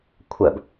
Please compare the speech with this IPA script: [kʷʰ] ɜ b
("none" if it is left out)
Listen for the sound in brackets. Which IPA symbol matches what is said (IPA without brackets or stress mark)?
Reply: kʷʰ